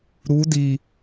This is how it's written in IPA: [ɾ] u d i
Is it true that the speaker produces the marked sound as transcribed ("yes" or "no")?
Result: yes